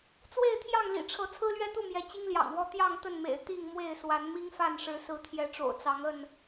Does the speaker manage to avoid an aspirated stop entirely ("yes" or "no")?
no